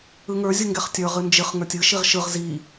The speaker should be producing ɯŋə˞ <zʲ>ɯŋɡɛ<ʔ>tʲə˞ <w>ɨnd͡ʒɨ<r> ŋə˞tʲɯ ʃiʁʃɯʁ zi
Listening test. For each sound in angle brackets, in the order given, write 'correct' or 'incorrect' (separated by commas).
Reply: correct, incorrect, incorrect, incorrect